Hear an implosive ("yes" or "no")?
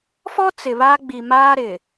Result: no